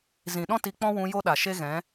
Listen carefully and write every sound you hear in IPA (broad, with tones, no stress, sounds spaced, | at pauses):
z ĩ˨ ɗ ɔ̃˦ t i˧ k͡p ɔ̃˦ w ũ˧ j o˦ ɗ a˨ ʃ e˦ ɣ ɛ̃˨˦